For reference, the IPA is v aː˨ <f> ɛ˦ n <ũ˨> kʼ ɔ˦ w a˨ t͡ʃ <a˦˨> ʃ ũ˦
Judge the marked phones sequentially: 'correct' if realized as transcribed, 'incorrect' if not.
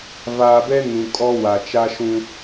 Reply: incorrect: b, correct, incorrect: a˦

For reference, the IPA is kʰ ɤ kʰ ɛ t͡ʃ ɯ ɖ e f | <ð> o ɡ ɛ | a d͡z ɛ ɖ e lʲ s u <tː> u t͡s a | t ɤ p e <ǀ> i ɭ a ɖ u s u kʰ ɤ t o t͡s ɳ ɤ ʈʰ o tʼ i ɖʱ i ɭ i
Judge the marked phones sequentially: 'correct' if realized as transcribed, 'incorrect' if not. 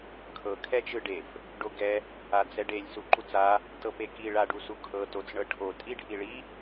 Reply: incorrect: ɖ, incorrect: ǃ, incorrect: k

